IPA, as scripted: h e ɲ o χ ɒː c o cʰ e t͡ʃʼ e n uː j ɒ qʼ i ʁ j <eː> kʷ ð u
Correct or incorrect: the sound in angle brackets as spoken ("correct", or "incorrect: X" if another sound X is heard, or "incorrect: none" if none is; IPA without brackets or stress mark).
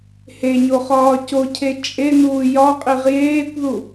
correct